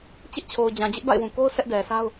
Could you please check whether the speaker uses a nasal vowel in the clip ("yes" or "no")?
yes